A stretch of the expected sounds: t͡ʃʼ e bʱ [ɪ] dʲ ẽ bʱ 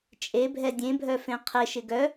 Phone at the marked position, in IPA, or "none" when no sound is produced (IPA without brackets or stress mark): ɛ